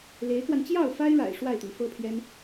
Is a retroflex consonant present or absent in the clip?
present